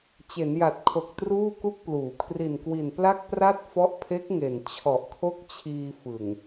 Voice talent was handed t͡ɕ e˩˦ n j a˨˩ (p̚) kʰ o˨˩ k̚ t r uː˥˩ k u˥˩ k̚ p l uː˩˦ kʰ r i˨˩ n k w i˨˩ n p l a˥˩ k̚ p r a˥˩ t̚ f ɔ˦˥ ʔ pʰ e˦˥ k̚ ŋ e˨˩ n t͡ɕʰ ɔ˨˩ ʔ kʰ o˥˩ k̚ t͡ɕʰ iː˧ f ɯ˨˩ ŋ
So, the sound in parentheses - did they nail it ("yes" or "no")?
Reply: no